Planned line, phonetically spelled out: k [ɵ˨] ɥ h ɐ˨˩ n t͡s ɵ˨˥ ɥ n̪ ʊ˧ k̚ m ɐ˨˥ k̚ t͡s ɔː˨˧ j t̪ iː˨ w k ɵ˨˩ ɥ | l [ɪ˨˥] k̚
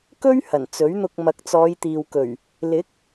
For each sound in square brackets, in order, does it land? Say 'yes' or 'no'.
no, yes

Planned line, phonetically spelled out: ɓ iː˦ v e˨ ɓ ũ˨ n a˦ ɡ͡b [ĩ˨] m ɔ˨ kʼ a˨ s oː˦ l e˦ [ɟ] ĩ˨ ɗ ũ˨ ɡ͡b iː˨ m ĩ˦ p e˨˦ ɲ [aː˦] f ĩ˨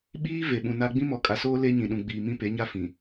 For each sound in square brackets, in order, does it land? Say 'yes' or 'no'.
no, no, no

